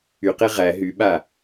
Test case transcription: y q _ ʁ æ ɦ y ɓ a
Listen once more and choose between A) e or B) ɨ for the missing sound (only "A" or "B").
A